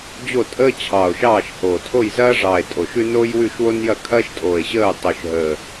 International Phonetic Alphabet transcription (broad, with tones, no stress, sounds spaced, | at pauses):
d͡ʑ o˦˨ tʼ əː˦ t͡ɕʰ ɑː˨˩ o̯ ʃ ɑː˦˨ ʃ h oː˨˩ tʰ o˦˨ j z ɐː˦ ʐ ɑː˨˩ e̯ tʼ o˨˩ ʃ ʉ˦ n oː˦ j w ʉ˦˨ ʃ w o˦ n j ɐ˦˨ kʰ ɐː˦ ʃ tʼ oː˨˩ e̯ ɕ əː˦˨ o̯ tˤ o˨˩ ʃ ɦ əː˨˩